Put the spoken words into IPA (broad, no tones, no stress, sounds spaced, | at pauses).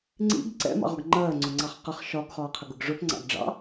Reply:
ŋ͡ǀ ḭ ɡ ǀ ɛ̰ m ɑ̰ ʁ ɒ ɡ ŋ͡ǃ ɜː ŋ͡ǀ ʊ ŋ͡ǀ ɑ χ q ʌ χ ʃ ɒ ɡ χ ɒː qʰ ə ɡ ʊ ɡ ʐ ʊ p ŋ͡ǀ ɑ̰ ɡ ɖ͡ʐ ɑ̰